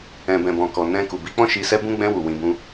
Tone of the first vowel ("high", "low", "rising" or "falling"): low